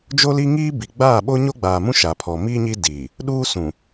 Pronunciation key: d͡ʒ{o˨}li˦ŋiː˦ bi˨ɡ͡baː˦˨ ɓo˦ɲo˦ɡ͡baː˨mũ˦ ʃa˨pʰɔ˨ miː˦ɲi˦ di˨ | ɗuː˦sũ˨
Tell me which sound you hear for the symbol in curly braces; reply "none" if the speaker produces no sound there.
o˦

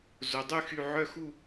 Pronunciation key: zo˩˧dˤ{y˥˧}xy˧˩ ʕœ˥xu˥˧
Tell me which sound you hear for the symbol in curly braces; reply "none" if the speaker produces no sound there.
y˥˧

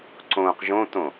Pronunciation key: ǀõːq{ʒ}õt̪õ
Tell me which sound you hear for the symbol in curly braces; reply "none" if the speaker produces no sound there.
ʒ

